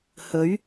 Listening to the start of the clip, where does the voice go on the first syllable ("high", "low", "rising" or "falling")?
rising